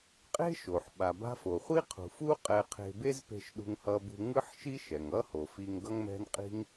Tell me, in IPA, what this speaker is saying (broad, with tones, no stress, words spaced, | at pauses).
qʼe̤˥ʃo˩ħ ɓa˩ba̤˧fo˩ χʷi˥qʰṳ˩fu˥ qʼɛ˧qʰe̤˧ be˥zpe̤˧ʃɗṳ˧ŋ hʌ˧bṳ˧ŋɯ˥ħʃi˥ ʃɛ˩ŋʌ˥ho˩fi˧ŋ ɡʌ˥ŋmɛ̤˥nqʼi̤˥ŋ